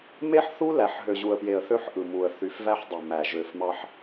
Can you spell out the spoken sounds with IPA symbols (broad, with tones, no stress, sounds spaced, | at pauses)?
m e˦ ħ θ u˦ l æ˨ ħ ɦ ø˨ ʑ u˨ ə̯ p j e˨ ə̯ θ ø˦ ħ ʔ ɯ˨ m u˨ ə̯ θ y˨˦ f v æ˦ ħ dˤ y˨ m æ˨ ʒ ø˨ f m ɑ˦ ħ